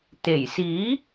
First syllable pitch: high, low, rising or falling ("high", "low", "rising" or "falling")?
low